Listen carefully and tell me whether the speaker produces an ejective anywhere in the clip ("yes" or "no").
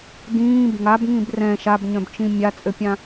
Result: yes